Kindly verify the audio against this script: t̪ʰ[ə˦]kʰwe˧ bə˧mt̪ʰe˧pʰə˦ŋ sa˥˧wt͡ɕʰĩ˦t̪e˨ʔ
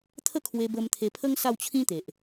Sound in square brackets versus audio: incorrect: ə˥˧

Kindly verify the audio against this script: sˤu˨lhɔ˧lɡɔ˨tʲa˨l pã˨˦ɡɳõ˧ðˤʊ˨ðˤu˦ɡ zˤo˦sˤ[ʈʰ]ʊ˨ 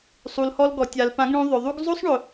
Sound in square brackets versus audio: incorrect: ɳ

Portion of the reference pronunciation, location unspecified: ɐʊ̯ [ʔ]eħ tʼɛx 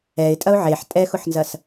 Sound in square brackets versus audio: incorrect: ʕ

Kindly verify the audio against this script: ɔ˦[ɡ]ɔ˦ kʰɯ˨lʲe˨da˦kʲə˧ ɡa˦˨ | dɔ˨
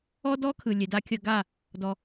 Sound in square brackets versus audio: incorrect: d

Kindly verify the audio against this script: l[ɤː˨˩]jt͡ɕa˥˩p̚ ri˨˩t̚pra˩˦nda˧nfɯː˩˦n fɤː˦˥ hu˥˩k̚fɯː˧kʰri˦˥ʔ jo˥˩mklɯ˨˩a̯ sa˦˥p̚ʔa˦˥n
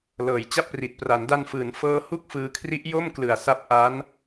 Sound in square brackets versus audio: correct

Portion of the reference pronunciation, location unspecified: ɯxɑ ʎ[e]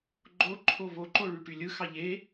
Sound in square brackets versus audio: correct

